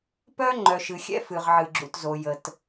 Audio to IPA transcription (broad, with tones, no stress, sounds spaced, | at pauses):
p œ˦ ŋ͡ǃ œ˨ ʃ ɨ˨ xʲ ɛ̰˦ f ɨ˨ ʁ ʕ ɨ˨ ɡ͡ǁ ṵ˨ t z o˨ j ə˨ t